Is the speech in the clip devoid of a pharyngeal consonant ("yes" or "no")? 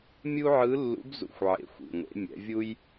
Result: no